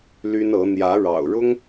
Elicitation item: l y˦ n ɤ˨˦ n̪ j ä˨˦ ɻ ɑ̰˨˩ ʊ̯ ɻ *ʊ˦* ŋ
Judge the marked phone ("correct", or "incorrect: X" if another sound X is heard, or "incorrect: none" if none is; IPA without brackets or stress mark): correct